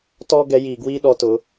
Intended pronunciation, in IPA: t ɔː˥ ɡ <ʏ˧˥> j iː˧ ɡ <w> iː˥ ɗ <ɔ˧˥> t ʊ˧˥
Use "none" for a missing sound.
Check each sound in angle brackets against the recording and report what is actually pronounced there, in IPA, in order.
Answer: ɛ˧˥, w, ɔ˧˥

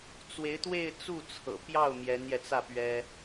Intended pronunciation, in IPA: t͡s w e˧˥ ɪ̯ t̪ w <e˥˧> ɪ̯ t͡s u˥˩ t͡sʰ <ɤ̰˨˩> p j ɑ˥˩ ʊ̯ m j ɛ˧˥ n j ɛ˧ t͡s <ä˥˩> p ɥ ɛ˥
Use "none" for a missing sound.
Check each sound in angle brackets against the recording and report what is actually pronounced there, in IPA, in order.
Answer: e˥˧, ɤ̰˨˩, ä˥˩

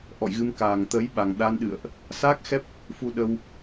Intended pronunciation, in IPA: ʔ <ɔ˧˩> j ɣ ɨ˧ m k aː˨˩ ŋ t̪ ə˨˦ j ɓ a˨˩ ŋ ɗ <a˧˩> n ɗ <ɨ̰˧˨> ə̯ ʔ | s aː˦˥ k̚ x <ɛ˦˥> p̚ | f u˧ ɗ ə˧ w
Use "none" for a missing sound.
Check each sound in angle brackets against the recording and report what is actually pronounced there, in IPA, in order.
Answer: ɔ̰˧˨, a˧, ɨ̰˧˨, ɛ˦˥

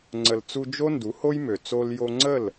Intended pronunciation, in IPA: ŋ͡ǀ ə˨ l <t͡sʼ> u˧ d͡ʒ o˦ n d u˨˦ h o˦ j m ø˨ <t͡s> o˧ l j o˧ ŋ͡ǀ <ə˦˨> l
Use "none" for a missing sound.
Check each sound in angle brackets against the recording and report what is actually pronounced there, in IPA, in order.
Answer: t͡s, t͡s, ə˦˨

